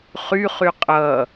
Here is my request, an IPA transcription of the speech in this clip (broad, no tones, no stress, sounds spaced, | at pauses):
χ y χ y qʼ ʌ